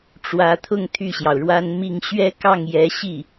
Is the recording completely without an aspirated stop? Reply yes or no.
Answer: no